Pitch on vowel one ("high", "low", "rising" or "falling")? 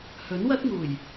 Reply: rising